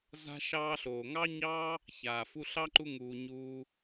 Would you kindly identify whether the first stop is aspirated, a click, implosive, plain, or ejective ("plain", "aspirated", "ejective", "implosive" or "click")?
click